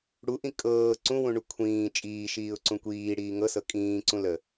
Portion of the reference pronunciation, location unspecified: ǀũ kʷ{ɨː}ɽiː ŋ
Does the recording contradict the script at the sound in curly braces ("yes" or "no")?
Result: yes